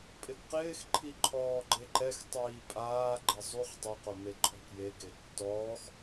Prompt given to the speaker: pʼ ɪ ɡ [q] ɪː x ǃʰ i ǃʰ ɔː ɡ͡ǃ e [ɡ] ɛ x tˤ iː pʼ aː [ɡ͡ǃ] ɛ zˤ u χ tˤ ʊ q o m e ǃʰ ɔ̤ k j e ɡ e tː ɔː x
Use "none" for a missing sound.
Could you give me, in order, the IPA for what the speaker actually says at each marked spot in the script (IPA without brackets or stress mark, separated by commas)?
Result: q, ǃ, ɡ͡ǃ